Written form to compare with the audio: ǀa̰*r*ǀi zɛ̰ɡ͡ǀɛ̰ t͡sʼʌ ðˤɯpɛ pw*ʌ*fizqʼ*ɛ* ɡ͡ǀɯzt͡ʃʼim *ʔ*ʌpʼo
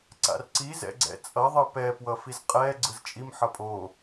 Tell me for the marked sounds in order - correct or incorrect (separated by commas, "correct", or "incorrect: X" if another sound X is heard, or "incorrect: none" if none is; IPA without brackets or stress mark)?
correct, correct, correct, incorrect: ħ